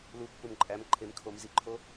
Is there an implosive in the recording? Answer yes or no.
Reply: no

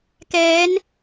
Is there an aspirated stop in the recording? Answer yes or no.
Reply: no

